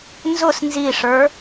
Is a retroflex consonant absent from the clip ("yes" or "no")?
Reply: no